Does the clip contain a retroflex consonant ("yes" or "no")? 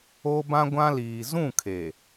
no